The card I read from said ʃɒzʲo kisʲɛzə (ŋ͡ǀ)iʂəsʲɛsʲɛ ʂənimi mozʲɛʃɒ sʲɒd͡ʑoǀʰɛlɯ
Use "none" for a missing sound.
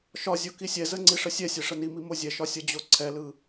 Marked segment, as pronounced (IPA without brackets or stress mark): ŋ͡ǀ